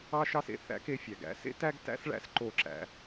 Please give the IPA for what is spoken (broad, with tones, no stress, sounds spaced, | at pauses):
ɑ˥ ʃ ɑ˥ s ḛ˧ θ æ̰˥ k e˧ fʲ æ˩ ɡ æ̰˥ s ḛ˥ t æ˥ ɡ t æ̰˥ s ɭ æ̰˥ s ǃ o˧ ǁ æ̰˧